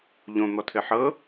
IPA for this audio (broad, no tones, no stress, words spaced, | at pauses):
ʎõ n̪ɔtʰɘħɤ